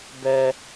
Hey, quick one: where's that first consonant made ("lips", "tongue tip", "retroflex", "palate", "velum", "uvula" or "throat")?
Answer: lips